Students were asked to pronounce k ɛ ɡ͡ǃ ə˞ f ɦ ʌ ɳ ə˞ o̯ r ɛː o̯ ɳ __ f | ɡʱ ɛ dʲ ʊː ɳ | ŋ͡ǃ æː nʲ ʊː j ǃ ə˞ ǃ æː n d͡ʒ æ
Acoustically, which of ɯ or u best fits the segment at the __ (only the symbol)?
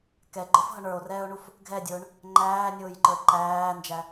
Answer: u